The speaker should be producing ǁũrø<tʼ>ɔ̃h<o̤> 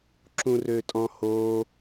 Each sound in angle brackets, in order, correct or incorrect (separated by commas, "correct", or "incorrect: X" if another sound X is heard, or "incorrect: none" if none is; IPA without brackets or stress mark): correct, incorrect: o